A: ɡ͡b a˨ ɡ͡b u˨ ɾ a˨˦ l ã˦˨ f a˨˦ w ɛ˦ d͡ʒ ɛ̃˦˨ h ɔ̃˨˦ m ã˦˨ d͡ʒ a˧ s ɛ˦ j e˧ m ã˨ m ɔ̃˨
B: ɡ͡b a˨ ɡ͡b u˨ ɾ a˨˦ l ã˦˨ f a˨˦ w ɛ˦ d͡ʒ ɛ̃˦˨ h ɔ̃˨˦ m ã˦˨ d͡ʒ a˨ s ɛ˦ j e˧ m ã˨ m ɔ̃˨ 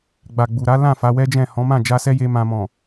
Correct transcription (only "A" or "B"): A